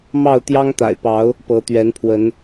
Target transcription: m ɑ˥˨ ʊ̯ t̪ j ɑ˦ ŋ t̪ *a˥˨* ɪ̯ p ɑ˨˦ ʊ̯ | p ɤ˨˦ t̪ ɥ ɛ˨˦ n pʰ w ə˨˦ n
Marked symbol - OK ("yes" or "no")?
no